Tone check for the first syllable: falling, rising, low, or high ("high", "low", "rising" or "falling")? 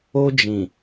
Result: high